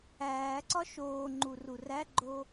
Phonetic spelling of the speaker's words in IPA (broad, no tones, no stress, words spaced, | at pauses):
æːǀɒ ʃoːŋ͡ǃu ruræɡ͡ǃo